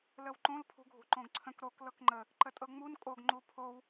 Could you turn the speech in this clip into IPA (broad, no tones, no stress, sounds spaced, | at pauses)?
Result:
l ə w ǃ õ l pʰ ṳ ɡʱ ṳ ǃ õ ɡ ǀʰ ə̃ k ɾ o k l ɤ k ŋ͡ǃ ə | ǃ ə tʼ ɤ ŋ͡m u n kʼ o ɡ ŋ͡ǃ u pʰ o w